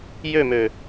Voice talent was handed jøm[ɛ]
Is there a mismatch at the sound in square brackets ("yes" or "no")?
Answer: yes